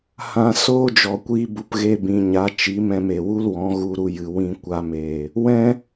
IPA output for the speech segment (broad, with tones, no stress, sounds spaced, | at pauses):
h ã˧ s oː˦ d͡ʒ ɔ˨ kʷ iː˧ b u˨ p ɣ e˧ b ĩ˨ ɲ a˨˦ t͡ʃ i˨˦ m ɛ̃˧ m e˨ w u˦ l w ɔ̃˨˦ ɣ u˧ ɾ u˧ j ɨ˨ w ĩ˧ kʷ a˧ m eː˨ | w ɛ̃˦